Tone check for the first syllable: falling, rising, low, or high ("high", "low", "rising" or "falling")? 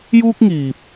high